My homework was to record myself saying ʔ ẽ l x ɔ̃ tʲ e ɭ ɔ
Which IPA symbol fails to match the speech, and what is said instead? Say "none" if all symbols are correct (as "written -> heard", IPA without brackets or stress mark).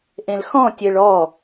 none